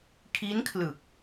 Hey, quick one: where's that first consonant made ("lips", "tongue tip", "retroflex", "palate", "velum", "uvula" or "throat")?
velum